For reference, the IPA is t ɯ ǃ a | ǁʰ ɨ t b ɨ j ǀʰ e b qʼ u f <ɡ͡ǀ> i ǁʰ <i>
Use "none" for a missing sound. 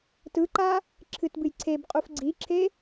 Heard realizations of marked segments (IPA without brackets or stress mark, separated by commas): ɡ͡ǀ, e